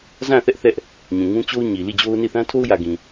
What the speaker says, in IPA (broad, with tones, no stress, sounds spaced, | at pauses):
z ã˦˨ θ ɛ˦ ʔ θ ɛ˦ ʔ | ɲ ũ˨ ŋ ũ˦ t͡ɕ o˦ ʊ̯ ɲ i˨ l i˦˨ d͡ʑ o˦ ʊ̯ n i˦˨ θ ã˦ tʰ o˦ ʊ̯ j ä˨ ɡ ĩ˨